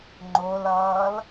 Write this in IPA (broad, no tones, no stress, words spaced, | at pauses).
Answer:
ŋ͡ǃolʌːl